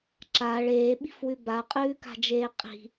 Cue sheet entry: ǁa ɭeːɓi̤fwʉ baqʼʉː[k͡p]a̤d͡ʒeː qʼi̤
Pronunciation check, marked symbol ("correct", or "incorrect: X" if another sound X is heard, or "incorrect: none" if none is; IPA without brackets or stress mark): incorrect: k